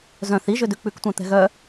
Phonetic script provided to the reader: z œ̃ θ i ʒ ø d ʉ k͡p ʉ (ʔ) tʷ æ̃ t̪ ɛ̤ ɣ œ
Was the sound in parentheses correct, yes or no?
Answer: no